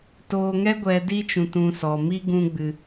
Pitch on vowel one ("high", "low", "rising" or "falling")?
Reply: low